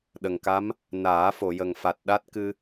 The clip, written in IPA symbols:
ɗə˨˩ŋka˧˥m | naː˨˩˦ fo˨˩˨jə˨˩ŋfa˨˩t̚ɗa˦˥t̚ kɨ˧

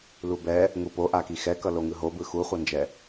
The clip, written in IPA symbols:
lubɛ | ŋupoʔaki xɛkʌ loŋɯɦobɯ xuχʷʌnd͡ʒɛ

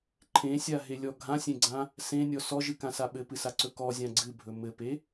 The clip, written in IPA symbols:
ǃʰẽsʲaɦelʲɔ ɡʱãsʲẽɡ͡ǀã | sẽnʲɔ sɔʒɨkãsa ɓɘpɨsaǀɵ kɔzʲã ɡ͡ǀɨbʱɵ mɘpe

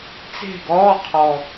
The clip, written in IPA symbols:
t͡se̤˥˨ɡɔː˧˥˧qʰɔ˨˩

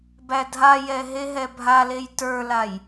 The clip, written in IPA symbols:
bædʱajɛ ɦeɦɛbʱalej tə˞laj

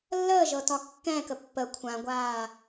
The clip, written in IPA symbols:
lːəːʒɤ tɒkːɛ̃kə pːə kʷʰãɡʷaː

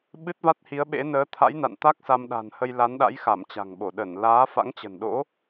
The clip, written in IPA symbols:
ɓɨ˦˥t̚va˦˥t̚hi˨˦ə̯ɓḛ˧˥ nəː˨˦t̪ʰa̰˧˥jna̰˧˨nt̪a˦˥k̚ sa˧mɗa̤˨˩nhə˧j la˨˦nɗa̰˧˥j xa˧˩mt͡ɕa̤˨˩ŋɓo˧˩ ɗə˧˩nlaː˨˦ fa̰˧˥ŋt͡ɕə̤˨˩nɗo̰˧˥

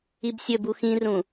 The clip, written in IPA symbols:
ibsʲɵbu xĩrũ

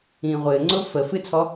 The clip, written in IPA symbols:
ĩːʁʷɘːŋ͡ǀʊː fə fɨt͡sʰɔ

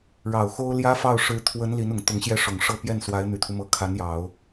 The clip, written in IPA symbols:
ɻɑ˨˩ʊ̯xo˥ʊ̯ ljä˥fɑ˥˩ʊ̯ ʂɻ̩˧˥ t̪ʰwə˧˥n li˧˥nʊ˨˩ŋt̪ʊ˧˥ŋɕjɛ˥˩ ʂʊ˨˩ŋʂɤ˥˧ pjɛ˥˩nswa˧˥ɪ̯ n̪y˨˩t̪ʰu˦mɤ˧˥ kʰa˧˥njɑ˨˩˦ʊ̯

